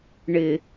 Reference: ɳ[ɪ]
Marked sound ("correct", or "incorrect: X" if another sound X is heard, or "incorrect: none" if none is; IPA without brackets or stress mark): correct